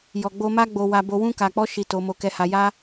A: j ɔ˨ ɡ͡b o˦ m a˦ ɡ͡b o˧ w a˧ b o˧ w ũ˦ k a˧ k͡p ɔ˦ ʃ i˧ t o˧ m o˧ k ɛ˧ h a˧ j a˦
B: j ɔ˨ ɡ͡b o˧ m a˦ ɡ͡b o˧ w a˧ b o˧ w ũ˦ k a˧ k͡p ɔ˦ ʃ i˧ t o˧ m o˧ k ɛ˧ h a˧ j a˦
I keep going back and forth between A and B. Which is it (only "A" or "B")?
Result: B